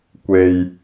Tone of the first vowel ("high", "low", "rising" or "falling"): low